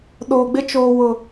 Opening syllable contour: low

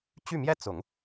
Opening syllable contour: falling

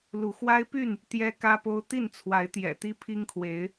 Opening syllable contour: rising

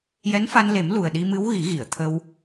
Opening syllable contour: rising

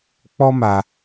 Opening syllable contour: high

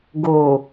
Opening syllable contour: low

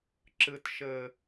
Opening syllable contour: low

